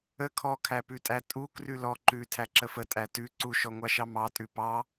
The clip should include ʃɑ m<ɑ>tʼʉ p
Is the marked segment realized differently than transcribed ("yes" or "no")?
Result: no